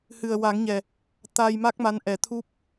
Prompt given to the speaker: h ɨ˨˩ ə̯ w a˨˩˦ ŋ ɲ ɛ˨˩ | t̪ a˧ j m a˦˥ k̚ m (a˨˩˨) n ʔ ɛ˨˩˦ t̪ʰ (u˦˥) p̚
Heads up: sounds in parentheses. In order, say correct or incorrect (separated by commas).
incorrect, correct